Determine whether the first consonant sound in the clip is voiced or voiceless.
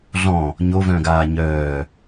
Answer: voiced